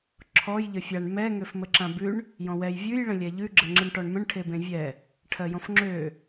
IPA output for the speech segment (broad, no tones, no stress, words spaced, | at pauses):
ǁʰɔj ʎəfʲaɳ mɛ ŋøfməǁãbʉɳ | jɔ̃wɛj vʲʉj ɭə̃lʲɛʎʉ ɡ͡ǁəŋ͡ǁɯɳʈɔɳmə̃ɳ ʈʰebẽvʲɛ | ʈʰɜjɔ̃fŋ͡ǁø